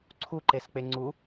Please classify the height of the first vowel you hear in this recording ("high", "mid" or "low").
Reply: high